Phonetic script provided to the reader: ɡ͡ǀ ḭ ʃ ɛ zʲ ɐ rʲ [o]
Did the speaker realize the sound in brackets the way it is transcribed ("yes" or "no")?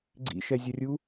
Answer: no